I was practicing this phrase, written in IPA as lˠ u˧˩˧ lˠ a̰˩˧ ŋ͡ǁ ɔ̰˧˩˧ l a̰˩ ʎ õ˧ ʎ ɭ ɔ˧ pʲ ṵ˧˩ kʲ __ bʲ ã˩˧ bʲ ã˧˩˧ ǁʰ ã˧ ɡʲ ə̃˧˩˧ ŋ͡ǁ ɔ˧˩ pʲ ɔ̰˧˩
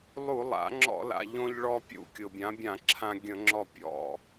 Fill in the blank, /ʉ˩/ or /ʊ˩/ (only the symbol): ʊ˩